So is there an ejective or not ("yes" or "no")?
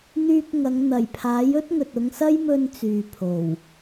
no